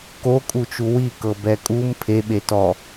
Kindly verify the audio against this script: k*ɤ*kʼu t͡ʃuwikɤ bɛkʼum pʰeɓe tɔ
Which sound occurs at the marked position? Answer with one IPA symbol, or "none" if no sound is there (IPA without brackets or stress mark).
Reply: o